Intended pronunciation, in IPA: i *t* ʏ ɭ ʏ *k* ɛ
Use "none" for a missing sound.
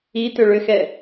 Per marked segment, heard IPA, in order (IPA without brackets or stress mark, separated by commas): t, x